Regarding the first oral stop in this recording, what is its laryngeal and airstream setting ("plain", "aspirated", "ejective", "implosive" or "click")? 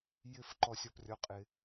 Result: click